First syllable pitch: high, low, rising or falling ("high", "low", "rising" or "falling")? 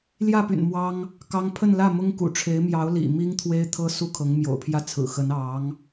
falling